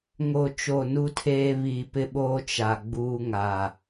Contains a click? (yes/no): no